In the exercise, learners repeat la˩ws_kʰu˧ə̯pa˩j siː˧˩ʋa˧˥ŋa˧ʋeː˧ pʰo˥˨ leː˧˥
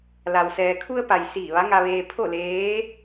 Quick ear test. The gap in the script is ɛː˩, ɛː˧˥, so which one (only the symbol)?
ɛː˩